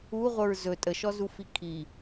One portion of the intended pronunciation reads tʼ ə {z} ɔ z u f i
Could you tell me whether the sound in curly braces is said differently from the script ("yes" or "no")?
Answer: yes